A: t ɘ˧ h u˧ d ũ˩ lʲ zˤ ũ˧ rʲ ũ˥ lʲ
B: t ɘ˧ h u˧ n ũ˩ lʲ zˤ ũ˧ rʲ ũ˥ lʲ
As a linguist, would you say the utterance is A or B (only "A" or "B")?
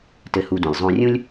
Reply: A